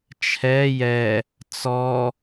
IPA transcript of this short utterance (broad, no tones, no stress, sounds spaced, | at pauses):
t͡ʃʰ ɛ j ɛ | t͡s ɔ